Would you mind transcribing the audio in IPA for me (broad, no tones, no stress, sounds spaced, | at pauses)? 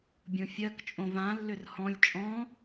bʲ õ fʲ ɜ k t͡ʃʼ õ v ã lː ʏ r h ɔ̃ lʲ t͡ʃʼ ɔ̃